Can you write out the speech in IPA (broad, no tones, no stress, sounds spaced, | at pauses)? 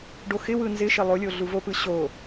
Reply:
ɖ o x ɪ w ɯ n z ɪ ʃ ɪ lˠ o lʲ o ɮ u v o p ɯ ɕ o